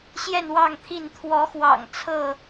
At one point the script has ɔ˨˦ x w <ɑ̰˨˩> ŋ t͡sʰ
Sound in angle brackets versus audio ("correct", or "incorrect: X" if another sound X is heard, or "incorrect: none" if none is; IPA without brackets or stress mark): correct